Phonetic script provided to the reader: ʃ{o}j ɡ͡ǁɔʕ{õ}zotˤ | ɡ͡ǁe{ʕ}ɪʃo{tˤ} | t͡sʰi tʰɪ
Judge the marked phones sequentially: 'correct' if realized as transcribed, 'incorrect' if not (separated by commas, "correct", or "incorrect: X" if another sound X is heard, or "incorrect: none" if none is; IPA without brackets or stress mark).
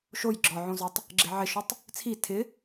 correct, correct, correct, correct